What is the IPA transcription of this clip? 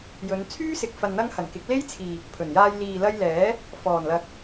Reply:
jɵ˨˧nt͡sʰyː˥ sɪ˨k̚fɐ˨nn̪ɐ˧ŋ hɐ˨˩nkɪ˨˥k̚le˥jt͡sʰiː˨ | pʰɵ˨˩njaː˧j liː˨lɐ˧jlɛː˨˥ | fɔː˨˩nlɐ˨k̚

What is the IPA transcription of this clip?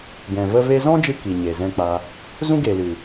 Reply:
ɡɛ̃˨və˦ve˦ zɔ̃˦d͡ʒɨ˧ ki˨ ɲe˨zɛ̃˧k͡pa˧ | zũ˦ɡe˨lɨ˨

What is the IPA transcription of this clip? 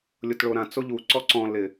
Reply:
lʲʊtɭoɾã t͡soʎuǀɔ ǀɔ̃ lɪ

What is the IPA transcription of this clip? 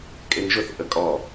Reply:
kʼeŋʒʊθ ʔəkʼɔ

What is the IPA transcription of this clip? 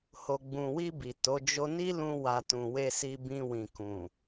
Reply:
ho˨ɡ͡bũ˨wi˧ bi˨to˨˦ d͡ʒo˧ni˦lũ˧ wa˧ tũ˨we˧si˧ bĩ˧wĩ˨kũ˨

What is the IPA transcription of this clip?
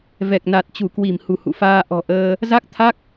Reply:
vɛ˨˩k̚na˨˩t̚ t͡ɕu˧˩kwi˧˩mhu˧˩ hṵ˧˨faː˧ ʔɔ̤˨˩ʔəː˧ | za˦˥k̚t̪ʰa˦˥k̚

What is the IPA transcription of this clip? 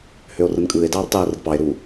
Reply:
høo̯rɯnkʼɯːe̯ dɑːrtˤɯːrɯdpɑe̯ ɾu

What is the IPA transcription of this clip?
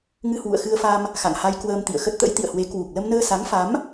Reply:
ŋɨ˧hwṵ˧˨ə̯xɨ˧ə̯fa˧m | xa̰˧˨ŋha˧j kwəː˧mt̪ḭ˧˨ə̯xə˦˥t̚t̪ə̰˧˥j t̪ḭ˧˨ə̯hwe˨˦ kwu˨˩k̚ lə˧mnəː˧ sa˨˦ŋfa˨˦m

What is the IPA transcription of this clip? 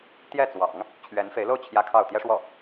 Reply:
t̪jɛ˥˩t͡swɑ̰˨˩˦ŋ | t͡ɕʰɥɛ˧˥nfe˧˥ɪ̯lo˥˩ʊ̯ t͡ɕʰjä˥kʰɑ˥˩ʊ̯ t̪jɛ˥ʂwɔ˥˩

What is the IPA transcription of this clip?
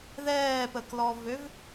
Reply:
ðɛːpəklɔvøv

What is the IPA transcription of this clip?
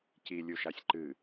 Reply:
cilʲuʃasʲ ǃɨ

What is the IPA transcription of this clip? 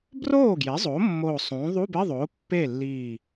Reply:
broː˥˩ɡje˩˥zˤo˩˥ mːoː˧˩sˤũː˩˥ ðˤu˧˥˧bɪ˧˥˧ðˤoː˩˥ pːe˥˩lːiː˧˩

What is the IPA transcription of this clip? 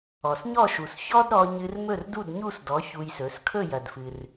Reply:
ɔ˩sɲɔ˥˩ʃu˩s çɔ˥dɾɔ˧ ɲɨ˧r mɵ˥˩rdu˥˩dɲu˥˩sdɔ˩˥ çu˧jsɵ˩˥s kʰɵ˥˩jɐ˩dfɨ˩r

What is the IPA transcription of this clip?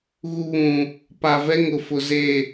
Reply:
ɣu˨ βũ˨ | pa˨vɛ˦ ŋʊ˨fʊ˨ze˦˨

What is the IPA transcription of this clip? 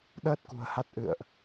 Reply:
ɗəː˦˥t̚kṳ˨˩ə̯ha˦˥t̚ ʔɨ̰˧˨ə̯ʔ

